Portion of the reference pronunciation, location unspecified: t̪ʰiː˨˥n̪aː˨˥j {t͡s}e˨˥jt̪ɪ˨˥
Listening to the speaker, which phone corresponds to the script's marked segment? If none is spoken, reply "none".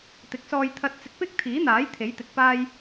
t̪ʰ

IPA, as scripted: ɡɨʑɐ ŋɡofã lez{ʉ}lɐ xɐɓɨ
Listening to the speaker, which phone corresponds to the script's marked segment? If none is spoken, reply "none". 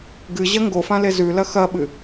ʉ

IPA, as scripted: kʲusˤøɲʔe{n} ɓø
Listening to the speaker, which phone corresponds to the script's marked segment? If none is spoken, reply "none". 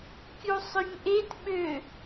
t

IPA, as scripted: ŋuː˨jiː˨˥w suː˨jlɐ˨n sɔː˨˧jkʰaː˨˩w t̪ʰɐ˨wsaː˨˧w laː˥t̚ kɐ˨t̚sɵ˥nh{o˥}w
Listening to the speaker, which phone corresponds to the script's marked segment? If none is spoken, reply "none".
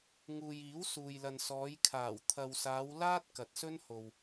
o˨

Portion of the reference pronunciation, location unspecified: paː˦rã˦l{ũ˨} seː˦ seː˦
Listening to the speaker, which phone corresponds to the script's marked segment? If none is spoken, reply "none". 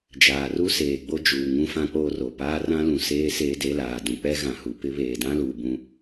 ũ˨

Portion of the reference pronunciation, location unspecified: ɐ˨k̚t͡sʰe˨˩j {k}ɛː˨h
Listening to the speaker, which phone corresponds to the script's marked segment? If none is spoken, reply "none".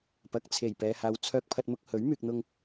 p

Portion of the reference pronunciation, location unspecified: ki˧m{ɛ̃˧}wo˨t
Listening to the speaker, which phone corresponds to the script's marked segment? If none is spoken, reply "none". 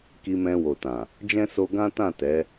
ɛ̃˧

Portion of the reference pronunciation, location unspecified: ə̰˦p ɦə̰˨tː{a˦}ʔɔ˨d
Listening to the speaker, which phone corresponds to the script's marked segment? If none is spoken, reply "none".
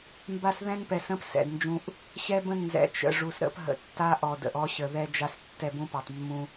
a˦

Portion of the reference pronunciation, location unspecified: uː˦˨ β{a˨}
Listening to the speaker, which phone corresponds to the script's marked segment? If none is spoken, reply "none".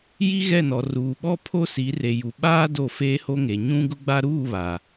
a˨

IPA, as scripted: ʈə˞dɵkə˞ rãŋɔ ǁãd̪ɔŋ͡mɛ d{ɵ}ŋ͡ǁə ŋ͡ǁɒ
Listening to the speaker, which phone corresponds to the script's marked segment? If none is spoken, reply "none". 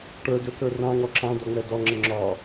ɔ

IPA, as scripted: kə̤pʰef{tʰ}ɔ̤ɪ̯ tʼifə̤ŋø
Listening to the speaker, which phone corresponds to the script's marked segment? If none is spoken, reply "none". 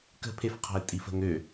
qʰ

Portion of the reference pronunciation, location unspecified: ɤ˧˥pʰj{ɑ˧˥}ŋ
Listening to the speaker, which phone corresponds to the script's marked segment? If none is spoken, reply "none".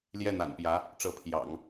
ɑ̰˨˩˦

